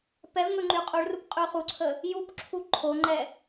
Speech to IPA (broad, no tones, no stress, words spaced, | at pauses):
pɛvŋɵ ŋ͡ǃyqʼuɭrup qʼyχuǀʰə | jupǁʰu ǃʰoŋ͡ǃɛ